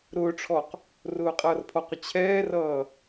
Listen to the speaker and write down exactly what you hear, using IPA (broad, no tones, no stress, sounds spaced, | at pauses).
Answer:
ɾ ʊː ʈ͡ʂʰ ɔ q | r ʊː qʼ ʌː r pʰ ɔ q ʊ t͡ɕʰ ɛː r ʌː